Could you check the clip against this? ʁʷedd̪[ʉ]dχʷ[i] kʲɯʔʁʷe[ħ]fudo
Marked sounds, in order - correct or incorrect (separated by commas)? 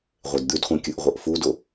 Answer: correct, incorrect, incorrect